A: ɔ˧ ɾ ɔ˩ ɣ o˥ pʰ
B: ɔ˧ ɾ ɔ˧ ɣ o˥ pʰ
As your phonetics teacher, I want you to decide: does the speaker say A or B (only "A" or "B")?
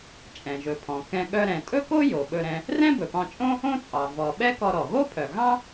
A